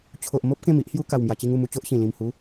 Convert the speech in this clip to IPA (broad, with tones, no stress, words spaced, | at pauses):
t͡ɕʰo˨ʔmo˦p̚ kẽ˥˧mi˦ʔhju˦ ka˨˩wmja˨˩t͡ɕi˧ŋ u˧mu˧t͡ɕo˦ʔɕĩ˨˩ lĩ˨˩mhu˨˦